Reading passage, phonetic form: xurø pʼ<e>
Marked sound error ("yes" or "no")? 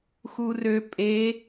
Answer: no